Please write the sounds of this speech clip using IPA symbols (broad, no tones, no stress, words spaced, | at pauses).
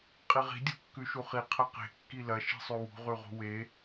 qʼiʁi̤ dʲṳkːʉʃuχi qʰɐqe̤ kːilɐ ʃi̤sˤʉwṳ ʁʉʁṳwe